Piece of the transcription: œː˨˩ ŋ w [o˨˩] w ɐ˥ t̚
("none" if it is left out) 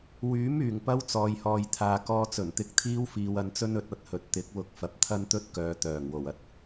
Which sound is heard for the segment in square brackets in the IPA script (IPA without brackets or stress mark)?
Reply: o˨˩